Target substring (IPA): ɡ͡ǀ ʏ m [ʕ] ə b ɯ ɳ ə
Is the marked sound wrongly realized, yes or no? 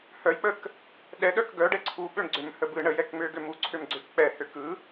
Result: yes